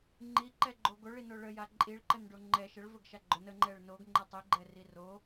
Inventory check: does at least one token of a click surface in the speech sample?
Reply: yes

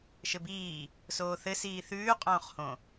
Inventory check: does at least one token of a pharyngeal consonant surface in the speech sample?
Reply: no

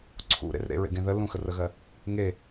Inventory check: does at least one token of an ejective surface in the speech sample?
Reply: no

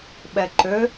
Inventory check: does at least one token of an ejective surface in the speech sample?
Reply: no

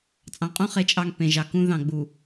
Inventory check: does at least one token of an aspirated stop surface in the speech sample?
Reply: no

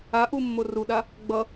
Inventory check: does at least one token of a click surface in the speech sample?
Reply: no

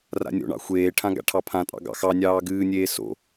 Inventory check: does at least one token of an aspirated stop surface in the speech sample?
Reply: yes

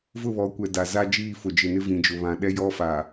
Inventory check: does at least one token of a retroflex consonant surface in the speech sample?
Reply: no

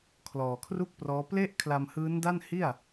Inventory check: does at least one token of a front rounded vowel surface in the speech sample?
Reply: no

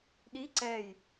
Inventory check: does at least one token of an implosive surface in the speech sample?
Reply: yes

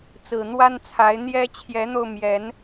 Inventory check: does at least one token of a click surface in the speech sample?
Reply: no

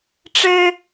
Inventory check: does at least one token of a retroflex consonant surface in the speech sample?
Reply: yes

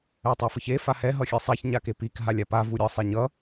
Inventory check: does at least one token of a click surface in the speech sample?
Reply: no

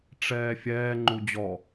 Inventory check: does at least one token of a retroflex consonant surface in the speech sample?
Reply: yes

